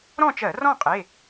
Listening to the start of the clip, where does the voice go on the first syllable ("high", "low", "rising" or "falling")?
falling